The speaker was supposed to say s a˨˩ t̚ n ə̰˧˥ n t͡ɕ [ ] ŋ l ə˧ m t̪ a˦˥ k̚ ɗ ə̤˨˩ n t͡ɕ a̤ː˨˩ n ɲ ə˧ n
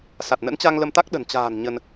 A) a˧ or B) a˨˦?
A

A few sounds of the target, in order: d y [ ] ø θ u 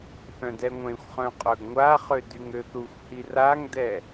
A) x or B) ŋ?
B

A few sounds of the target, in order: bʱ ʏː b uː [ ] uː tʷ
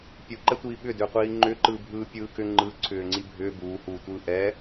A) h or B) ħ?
A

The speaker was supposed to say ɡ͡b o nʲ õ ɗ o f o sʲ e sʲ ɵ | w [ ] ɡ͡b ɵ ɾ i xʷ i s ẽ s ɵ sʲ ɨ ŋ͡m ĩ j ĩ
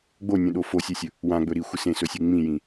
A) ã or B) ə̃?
A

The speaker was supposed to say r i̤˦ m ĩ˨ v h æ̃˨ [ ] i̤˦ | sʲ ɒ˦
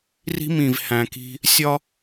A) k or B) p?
A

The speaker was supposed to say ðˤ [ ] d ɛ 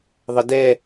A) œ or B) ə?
B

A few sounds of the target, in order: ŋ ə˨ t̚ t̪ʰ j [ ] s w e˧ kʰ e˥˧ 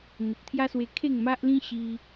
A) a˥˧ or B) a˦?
B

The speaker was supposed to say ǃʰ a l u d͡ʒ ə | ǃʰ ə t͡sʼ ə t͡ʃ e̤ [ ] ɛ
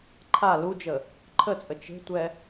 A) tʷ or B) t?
A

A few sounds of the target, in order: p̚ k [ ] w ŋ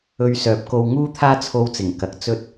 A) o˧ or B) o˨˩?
A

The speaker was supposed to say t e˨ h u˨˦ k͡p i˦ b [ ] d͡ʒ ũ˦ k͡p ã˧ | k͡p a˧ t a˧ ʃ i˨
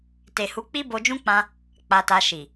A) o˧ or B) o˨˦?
A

